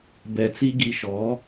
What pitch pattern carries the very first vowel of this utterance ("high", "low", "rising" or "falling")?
low